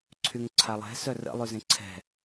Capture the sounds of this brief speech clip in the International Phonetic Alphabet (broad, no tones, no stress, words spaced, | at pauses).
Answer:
ǀʰyŋǀʰalˠɛ̤ sœrə̰ lˠyzẽǀʰɛ̤